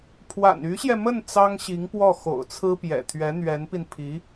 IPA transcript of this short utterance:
pʰ w a̰˨˩ n y˧˥ ɕ j ɛ˧ m ə˥˩ n t͡s ɑ˥ ŋ ɕ i˧˥ ŋ p w ɔ˥˩ x o̰˨˩ ʊ̯ t͡sʰ ɹ̩˥ p j ɛ̰˨˩ t̪ʰ ɥ ɛ˧˥ n̪ ɥ ɛ˧˥ n p i˧ n pʰ i˧˥

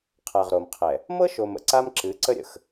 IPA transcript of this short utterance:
qʰ a˨ ʁ ɾ o˨ m qʰ ɛ˨ | m ɤ˦ ʃ o˨ m ə̰˨ ǀ a˦ m ǁ ɨ˨˦ ǀ ə˦ ɾʲ ə̰˨ x

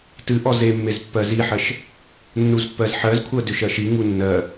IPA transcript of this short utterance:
t ɨ ʔ ɔ z e mː e z pː ɜ z i ħ ɜ ʃ | nː u z pː ɜ z ħ ɜ z kʷʰ ɜ d ʏ ʃ ɜ ʃ i ŋ u nː ɜ

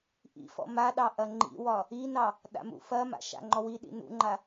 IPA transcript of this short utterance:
ʔ ḭ f ɔ̰ m a ɗ ɑ ʔ ɐ ŋ͡ǃ ḭ w ɒ | i n ɑ | ɗ a̰ m ṵ f ɐ m a̰ ʃ a̰ ŋ͡ǃ ɔ w i ɗ ḭ n ṵ ŋ͡ǃ a

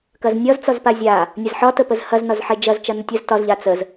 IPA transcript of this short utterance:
k ɐ z nʲ ɒ z t͡s ɒ z p a zʲ a | nʲ ɐ z ħ ɒ t ə p ə z h ɐ z n ɒ z ħ e d͡ʒ ɐ z t͡ʃ ɐ n ə tʲ ə z t ɒ z ʎ a t͡s ə z

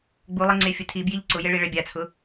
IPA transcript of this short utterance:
ɡ͡b u lˠ e ŋ͡ǀ e fʲ ʊ tʰ i b j i ʎ ǀ ʊ j e ɭ i ɭ ɛ bʲ a t͡sʰ ʊ

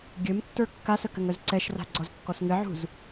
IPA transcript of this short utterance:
ɡʲ ɘ m tː ə˞ kː a s ə k ɘ ŋ œ z ǀ ɛ ʃ r a̤ ɡ͡ǀ ɔ z kː ɔ s ŋ ɘ ʕ ṳ z

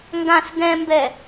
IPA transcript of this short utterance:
ŋ ɡ ã s ɡ ɛ̃ m b ɛ

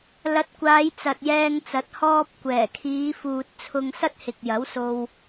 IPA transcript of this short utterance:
l ɐ˨˥ t̚ kʷ aː˨˧ j t͡s ɐ˨ t̚ j ɛː˧ ŋ t͡s ɐ˨˥ t̚ h ɔː˧ p̚ kʷ ɛː˨˩ kʰ iː˨˧ f uː˨ t̚ t͡sʰ ʊ˧ ŋ s ɐ˥ t̚ h ɪ˨ k̚ j ɐ˨˥ w s o˧ w

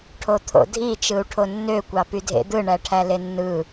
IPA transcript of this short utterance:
ʈʰ o t̪ʰ o̰ dʱ i t͡ʃ ɯ u̯ ʈʰ o nː ø kʷ ɑ p y dʱ ḛ d̪ ɯ ɳ æ ʈʰ æ l e nː ɯ

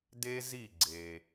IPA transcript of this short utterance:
d e˥ z i˥˩ ɡ͡ǀ e˩

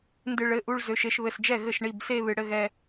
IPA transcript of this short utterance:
n d ɨ˧ ɭ ɘ˩˧˩ ʔ u˥˧ ɭ z ø˩˧˩ ʃ e˧ ʃ β ɘ˩˧˩ s d͡ʒ ɛ˥˩ ɣ ɘ˥˩ ʃ ɳ i˩˧˩ b s e˥˧ β ɨ˩ ɽ ɘ˥˧ ɣ ɛ˧

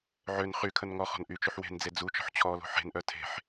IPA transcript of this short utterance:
ʕ ø n χ y kʰ ə n ŋ ɔ χ ɔ̤ n ʔ y t͡ʃ y ħ w e̤ n d͡z e d͡z u t͡ʃ ɔ̤ ħ t͡ɕʰ ɔ l o̤ ħ e̤ n ʔ œ tʰ e̤ ħ

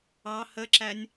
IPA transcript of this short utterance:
ɑ h ə ǁ æ nʲ

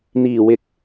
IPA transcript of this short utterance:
n̪ iː˨˩ w ɪ˨˥ k̚

